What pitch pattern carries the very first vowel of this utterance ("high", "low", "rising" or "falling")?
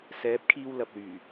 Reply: rising